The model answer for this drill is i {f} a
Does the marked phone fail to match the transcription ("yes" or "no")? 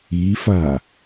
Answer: no